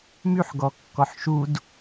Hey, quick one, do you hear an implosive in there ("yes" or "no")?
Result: no